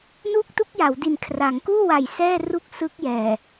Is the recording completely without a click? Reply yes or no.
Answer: yes